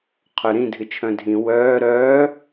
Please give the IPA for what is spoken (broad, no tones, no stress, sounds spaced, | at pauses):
qʰ œ ɾ ĩ dʱ ɨ t͡ʃʰ œ̃ dʱ ĩ w œː ɾ œː